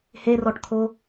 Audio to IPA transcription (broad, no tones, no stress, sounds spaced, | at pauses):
h e r ɔ ʈ t̪ʰ o